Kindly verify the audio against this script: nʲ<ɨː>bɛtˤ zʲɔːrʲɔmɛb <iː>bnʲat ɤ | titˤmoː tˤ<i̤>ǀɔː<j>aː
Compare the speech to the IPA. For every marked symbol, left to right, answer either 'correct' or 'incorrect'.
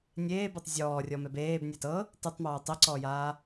incorrect, incorrect, incorrect, correct

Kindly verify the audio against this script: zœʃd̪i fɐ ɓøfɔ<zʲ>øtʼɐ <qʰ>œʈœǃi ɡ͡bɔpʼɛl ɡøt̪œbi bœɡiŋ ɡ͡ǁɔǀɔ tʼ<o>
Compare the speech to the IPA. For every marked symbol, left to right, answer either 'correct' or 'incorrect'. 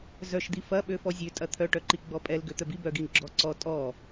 correct, incorrect, incorrect

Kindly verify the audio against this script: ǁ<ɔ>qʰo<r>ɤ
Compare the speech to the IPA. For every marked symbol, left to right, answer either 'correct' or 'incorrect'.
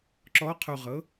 correct, incorrect

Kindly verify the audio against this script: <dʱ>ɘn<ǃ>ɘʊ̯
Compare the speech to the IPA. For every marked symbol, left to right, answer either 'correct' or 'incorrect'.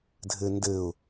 correct, incorrect

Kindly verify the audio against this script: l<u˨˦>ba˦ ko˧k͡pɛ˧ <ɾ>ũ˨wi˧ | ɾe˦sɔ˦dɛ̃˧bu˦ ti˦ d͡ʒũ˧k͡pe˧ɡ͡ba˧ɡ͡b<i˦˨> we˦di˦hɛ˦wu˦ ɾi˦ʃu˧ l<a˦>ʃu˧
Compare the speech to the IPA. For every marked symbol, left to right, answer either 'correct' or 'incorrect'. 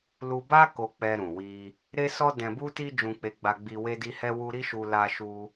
incorrect, correct, incorrect, incorrect

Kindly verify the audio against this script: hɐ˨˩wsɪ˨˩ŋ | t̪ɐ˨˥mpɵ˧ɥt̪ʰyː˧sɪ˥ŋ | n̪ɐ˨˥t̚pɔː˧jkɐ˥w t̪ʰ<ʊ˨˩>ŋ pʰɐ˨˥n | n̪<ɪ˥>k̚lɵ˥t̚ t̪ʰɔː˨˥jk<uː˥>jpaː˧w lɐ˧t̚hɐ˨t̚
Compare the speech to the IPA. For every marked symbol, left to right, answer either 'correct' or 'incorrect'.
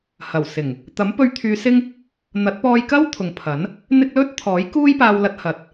incorrect, correct, correct

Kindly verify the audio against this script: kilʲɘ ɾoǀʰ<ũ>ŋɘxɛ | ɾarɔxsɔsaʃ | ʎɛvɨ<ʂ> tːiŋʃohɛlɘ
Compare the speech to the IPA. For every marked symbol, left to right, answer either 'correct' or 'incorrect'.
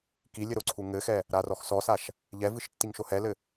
incorrect, incorrect

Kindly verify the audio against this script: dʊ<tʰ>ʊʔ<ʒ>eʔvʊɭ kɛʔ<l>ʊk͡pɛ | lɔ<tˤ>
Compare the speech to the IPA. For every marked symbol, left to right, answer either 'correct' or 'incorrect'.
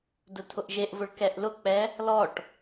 correct, correct, correct, incorrect

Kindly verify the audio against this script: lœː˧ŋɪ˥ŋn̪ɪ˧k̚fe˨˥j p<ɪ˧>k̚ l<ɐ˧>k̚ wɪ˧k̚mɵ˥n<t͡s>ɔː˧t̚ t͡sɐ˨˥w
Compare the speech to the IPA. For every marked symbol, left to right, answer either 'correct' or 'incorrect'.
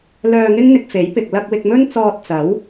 correct, correct, correct

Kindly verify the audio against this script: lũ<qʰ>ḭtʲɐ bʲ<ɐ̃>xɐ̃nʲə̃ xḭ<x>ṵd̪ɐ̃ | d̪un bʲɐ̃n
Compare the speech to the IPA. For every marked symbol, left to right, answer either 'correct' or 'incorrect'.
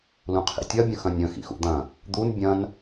correct, incorrect, correct

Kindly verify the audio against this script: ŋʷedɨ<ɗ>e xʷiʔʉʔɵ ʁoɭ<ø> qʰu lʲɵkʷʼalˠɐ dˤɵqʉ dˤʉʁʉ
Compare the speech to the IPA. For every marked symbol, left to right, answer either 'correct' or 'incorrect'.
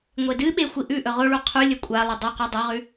incorrect, incorrect

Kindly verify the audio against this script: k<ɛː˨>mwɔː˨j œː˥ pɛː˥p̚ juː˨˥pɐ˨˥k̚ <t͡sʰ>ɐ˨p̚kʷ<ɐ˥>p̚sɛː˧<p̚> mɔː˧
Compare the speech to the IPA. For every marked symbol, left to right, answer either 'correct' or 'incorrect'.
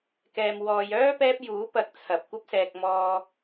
correct, correct, correct, incorrect

